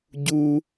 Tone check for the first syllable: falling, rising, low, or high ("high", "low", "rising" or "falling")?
high